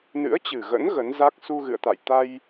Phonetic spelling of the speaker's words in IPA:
n ɨ̰˧˥ ə̯ t͡ɕ ɨ˨˩ ɣ ə̰˧˥ n ɣ ə˨˦ n z a˦˥ k̚ s u˧ ɣ ɨ̰˧˨ ə̯ t̪ a̰˧˨ j t̪ a˧ j

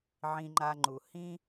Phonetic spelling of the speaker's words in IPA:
ʕ ĩ˧ ŋ͡ǃ a˧ ŋ͡ǃ u˨ h ĩ˧

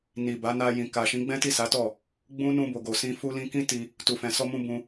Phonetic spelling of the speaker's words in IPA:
n i˨ b a˨˦ n a˧ j ĩ˨ k a˨ ʃ ĩ˨˦ ɡ͡b ɛ̃˦ t i˦˨ s a˨˦ t ɔ˦˨ | ɡ͡b ũ˦ n ũ˧ b o˨ ɡ o˨ s ĩ˧ f u˧ l ĩ˧ k ĩ˦ t i˧ | t u˨ f ɛ̃˨ s ɔ˧ m ũ˧ b ũ˧

